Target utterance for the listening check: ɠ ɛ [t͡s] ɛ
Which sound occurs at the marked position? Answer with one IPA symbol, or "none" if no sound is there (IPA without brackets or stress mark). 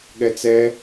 t͡s